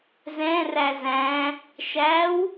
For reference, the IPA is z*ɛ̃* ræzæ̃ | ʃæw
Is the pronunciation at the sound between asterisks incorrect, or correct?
correct